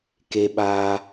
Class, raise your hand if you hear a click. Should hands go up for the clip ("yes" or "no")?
no